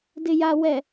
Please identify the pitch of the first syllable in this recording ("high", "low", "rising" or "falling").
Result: low